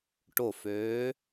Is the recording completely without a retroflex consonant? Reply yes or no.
no